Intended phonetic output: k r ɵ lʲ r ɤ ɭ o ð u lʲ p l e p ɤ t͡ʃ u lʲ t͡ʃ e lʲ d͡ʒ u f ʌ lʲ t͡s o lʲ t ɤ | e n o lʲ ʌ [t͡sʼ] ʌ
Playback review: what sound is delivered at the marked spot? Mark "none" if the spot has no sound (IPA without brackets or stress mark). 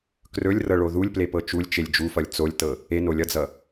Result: d͡z